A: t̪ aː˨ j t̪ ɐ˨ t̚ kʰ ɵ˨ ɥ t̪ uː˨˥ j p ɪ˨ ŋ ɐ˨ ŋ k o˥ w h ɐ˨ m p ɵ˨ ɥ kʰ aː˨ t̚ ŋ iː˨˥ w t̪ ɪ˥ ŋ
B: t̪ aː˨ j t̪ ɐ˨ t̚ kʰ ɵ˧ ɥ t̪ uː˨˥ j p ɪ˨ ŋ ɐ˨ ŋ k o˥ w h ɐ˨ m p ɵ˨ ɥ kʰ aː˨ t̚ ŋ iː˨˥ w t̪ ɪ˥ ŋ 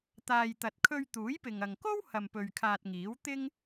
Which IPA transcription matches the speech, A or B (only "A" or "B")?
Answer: B